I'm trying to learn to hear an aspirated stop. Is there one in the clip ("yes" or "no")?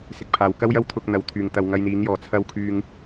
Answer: yes